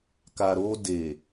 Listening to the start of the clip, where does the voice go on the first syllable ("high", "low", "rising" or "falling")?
low